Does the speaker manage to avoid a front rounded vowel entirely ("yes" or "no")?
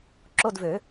no